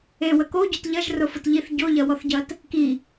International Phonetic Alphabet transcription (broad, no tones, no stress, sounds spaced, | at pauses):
e w ə k o ɟ y t ʎ ɐ ʒ r ʊ f ʊ t ʎ i θ ɟ o ʎ ɐ w ɔ θ ɟ ɐ t | k i